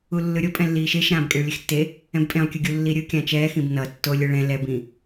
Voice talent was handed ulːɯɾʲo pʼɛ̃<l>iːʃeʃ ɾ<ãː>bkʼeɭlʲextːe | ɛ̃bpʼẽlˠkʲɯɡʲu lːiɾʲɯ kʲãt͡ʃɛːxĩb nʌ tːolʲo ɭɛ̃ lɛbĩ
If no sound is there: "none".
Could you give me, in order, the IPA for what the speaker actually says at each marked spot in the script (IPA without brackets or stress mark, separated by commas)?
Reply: lː, ãː